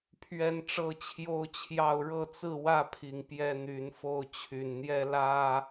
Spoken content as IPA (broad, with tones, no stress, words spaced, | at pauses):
pʰɥɛ˦nʈ͡ʂɤ˦t͡ɕʰjo˦ʊ̯t͡ɕʰjɑ˥˨ʊ̯ ɻɤ˥˨t͡sɹ̩˥˨wä˥˨pʰi˨˩ŋ pjɛ˦n̪y˨˦nfo˥˨ʊ̯ t͡ɕʰy˨˩nn̪jɛ˦ lä˦